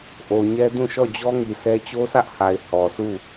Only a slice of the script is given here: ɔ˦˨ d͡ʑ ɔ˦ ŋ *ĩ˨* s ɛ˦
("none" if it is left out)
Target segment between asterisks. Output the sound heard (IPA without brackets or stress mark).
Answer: i˨